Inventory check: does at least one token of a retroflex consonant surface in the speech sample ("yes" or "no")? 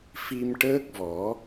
yes